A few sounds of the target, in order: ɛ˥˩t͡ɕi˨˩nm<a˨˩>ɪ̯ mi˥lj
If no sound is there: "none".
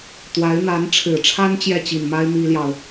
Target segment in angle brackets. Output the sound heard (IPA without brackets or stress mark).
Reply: a˥